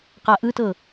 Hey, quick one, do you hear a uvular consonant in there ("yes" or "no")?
yes